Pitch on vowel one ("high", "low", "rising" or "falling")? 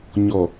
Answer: low